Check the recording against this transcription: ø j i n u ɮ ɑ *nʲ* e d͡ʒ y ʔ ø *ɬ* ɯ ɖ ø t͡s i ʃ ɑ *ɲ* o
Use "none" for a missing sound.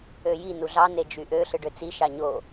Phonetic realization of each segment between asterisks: n, ɬ, ɲ

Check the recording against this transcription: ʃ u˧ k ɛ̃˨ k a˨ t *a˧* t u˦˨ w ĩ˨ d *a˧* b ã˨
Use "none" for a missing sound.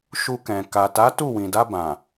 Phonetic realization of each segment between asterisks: a˨˦, a˧

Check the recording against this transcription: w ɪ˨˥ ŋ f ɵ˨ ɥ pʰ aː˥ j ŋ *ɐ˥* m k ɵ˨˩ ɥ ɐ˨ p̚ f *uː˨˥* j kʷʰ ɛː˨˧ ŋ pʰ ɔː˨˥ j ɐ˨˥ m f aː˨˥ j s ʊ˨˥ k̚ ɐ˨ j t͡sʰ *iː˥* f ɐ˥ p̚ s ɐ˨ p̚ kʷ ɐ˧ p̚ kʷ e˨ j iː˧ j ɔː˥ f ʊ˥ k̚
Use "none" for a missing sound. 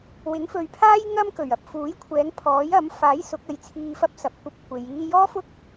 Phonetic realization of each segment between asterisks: ɐ˥, uː˨˥, iː˧

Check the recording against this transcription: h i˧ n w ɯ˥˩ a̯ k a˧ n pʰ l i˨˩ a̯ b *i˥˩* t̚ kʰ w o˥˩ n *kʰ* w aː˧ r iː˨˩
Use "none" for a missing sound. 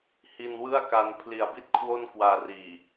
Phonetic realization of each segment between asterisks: i˥˩, k

